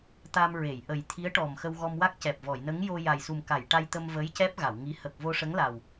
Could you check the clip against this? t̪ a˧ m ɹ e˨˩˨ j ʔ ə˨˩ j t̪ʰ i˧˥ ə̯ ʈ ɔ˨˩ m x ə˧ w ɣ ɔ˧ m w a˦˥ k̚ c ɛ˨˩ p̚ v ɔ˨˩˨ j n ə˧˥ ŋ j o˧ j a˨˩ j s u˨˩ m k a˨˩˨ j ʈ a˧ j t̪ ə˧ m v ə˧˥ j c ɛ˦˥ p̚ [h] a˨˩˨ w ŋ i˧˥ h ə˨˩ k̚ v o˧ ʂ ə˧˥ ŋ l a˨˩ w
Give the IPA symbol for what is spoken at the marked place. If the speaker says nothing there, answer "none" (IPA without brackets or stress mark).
ɣ